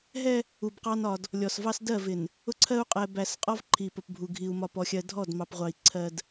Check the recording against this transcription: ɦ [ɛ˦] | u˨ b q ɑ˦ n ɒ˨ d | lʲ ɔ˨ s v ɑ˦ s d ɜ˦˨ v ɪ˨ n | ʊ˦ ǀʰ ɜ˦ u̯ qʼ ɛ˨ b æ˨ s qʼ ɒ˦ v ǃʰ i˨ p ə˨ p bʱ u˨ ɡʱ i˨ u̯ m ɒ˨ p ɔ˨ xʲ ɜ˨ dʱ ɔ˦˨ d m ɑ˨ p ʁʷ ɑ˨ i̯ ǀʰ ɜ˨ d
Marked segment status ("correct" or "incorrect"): correct